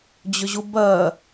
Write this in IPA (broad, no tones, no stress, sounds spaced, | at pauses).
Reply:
d͡ʑ ʏ ʑ u b ɜ